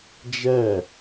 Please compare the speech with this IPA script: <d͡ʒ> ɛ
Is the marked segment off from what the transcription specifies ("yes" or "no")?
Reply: no